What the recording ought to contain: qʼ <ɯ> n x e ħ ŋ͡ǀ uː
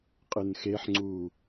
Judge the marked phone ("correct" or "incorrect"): correct